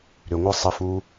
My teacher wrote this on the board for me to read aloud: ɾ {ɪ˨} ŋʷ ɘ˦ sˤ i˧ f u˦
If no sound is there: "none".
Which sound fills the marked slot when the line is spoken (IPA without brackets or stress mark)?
ʏ˨